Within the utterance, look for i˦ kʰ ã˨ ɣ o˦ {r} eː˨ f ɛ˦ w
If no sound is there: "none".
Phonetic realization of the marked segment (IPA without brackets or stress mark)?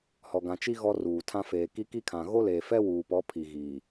l